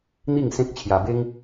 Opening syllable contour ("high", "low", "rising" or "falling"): falling